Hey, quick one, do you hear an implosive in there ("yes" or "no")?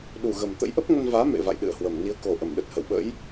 yes